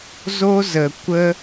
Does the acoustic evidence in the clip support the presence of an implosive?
no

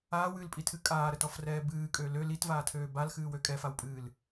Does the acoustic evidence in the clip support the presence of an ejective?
yes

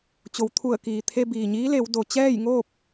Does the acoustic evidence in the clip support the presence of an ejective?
no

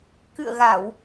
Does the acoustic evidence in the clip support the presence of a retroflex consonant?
no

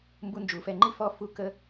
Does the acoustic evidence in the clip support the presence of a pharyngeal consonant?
no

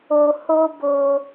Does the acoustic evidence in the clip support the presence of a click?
no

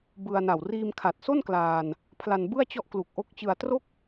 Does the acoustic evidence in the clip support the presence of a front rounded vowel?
no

